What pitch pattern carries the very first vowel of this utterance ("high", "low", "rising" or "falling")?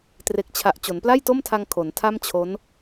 low